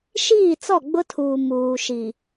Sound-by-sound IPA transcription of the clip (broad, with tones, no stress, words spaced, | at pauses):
ʃiː˦˨t͡sɔ˦˨ɡ͡bʊ˦tʰuː˨ muː˨ʃi˨